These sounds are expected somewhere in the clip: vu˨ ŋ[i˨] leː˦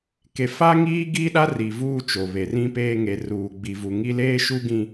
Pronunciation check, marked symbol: incorrect: i˦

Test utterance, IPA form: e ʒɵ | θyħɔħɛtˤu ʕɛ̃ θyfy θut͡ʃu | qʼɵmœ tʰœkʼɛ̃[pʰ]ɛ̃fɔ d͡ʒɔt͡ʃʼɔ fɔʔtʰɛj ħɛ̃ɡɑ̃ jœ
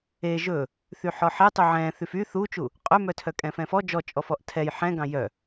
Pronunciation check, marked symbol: incorrect: f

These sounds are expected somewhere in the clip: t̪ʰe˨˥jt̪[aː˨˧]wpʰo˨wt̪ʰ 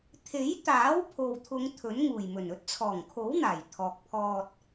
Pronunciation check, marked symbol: incorrect: aː˨˥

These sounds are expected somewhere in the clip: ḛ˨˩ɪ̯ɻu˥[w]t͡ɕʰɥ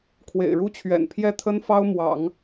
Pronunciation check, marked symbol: incorrect: none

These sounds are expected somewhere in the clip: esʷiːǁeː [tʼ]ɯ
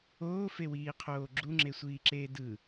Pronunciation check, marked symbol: incorrect: d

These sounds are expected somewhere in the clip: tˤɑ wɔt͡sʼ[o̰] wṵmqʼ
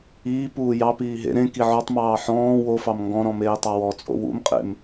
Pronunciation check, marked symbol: correct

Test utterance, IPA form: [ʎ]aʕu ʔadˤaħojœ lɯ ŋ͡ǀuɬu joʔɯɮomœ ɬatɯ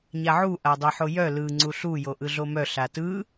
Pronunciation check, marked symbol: incorrect: ɲ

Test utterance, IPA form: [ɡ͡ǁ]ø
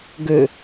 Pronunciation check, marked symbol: incorrect: ɡ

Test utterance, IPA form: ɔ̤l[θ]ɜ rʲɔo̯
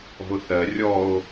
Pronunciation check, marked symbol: correct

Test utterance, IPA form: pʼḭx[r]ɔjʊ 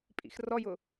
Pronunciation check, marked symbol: correct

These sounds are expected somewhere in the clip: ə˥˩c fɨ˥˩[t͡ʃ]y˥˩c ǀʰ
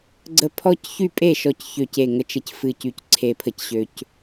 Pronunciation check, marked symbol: incorrect: c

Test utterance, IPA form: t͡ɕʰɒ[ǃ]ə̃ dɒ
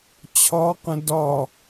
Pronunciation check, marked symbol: incorrect: q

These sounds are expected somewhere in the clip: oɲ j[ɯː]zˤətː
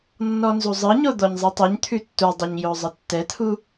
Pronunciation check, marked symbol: incorrect: ʊː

